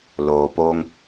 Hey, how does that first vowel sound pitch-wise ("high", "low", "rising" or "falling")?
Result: low